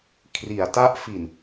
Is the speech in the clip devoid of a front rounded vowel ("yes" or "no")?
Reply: yes